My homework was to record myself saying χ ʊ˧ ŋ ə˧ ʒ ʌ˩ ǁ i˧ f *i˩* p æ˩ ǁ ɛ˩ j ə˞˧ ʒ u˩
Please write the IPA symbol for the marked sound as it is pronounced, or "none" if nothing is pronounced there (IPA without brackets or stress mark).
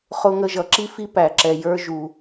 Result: i˧